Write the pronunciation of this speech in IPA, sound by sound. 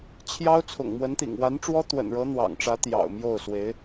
t͡ɕʰ j ɑ˥ ʊ̯ t͡sʰ ʊ̰˨˩ ŋ m w ə˧˥ n t̪ ḭ˨˩ ŋ w a˧˥ n ʈ͡ʂ w ɔ˥ t̪ w ə̰˨˩ n ɻ ɤ˧˥ n̪ w ɑ̰˨˩ ŋ ʈ͡ʂ ä˧˥ t̪ j ɑ̰˨˩ ʊ̯ m j o˥˩ ʊ̯ s w e˧˥ ɪ̯

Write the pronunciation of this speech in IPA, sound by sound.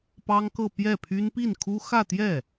p ɑ˥ ŋ k ɤ˥˧ p j ɛ˥˩ pʰ y˥ n p i˥˩ n kʰ u˥ x ä˥˧ t̪ j ɛ˥˩

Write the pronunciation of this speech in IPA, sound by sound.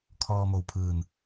kʰ ɔː˧ m o˧˩ w pʰ ɯː˧˩ n

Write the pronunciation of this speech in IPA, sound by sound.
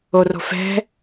o r o̤ f ɛ̤

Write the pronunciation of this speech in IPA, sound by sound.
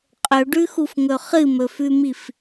qʼ ɵ ɖ ʉ x u f ŋ ɵ χ ɨ m ɵ f ʉ m i f

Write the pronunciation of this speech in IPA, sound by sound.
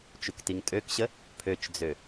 t͡ʃ u k t i ŋ tʼ ø k ɕ ə | pʰ ø t͡ʃ d͡z ø

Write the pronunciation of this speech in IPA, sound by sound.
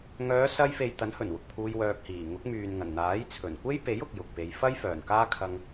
ŋ œː˨˧ s ɐ˧ j f e˨ j t̪ ɐ˨˥ n h ɵ˨˩ n w ʊ˨ k̚ pʰ uː˧ j w œː˧ k̚ h iː˨˩ ŋ ʊ˨˥ k̚ m yː˨ n ŋ ɐ˨˩ n n̪ aː˨˥ j t͡sʰ ɵ˨˩ n kʷ e˥ j p e˨˥ j ʊ˨ k̚ j ʊ˨ k̚ p e˨˧ j f ɐ˥ j f œː˨˩ n k aː˥ kʰ ɐ˧ ŋ

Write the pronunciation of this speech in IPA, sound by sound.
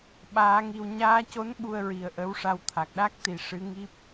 ɓ aː˧˥ ŋ i˧ w ɲ aː˧ c o˧˥ n ɓ u˧ ə̯ ɹ i˨˩ ə̯ ʔ ə˧˥ w ʂ a˧ w t̪ʰ a˨˩ k̚ ɗ a˦˥ k̚ t̪ i˨˩ ʂ ɨ˧˥ ŋ i˦˥ p̚

